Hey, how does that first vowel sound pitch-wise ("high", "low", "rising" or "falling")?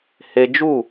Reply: high